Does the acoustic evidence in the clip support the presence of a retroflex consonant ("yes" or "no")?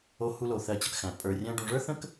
yes